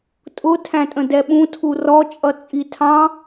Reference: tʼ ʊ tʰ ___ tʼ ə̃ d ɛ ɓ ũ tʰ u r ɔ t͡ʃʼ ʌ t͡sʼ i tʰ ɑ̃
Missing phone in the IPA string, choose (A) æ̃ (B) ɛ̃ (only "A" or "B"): A